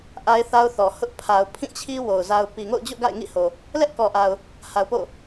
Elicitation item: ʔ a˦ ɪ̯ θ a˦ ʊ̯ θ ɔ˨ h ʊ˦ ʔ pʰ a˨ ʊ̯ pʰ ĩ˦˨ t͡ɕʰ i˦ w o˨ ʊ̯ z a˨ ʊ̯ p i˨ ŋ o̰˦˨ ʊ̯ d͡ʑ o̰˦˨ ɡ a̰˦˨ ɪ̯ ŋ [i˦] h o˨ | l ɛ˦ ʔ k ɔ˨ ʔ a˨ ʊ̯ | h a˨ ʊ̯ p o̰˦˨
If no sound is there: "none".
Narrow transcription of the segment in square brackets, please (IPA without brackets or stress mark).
ḭ˦˨